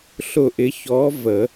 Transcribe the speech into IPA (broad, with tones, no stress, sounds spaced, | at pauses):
ɬ ʊ˦˨ ʔ ɪ˧˥ ç ɔ˧˥ v ə˨˩˦